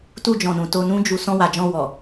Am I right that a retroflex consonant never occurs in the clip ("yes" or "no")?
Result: yes